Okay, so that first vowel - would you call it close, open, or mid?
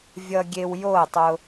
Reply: mid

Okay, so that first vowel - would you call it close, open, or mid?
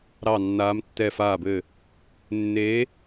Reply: open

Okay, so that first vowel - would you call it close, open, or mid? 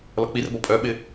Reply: mid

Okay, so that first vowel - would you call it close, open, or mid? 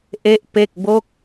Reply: mid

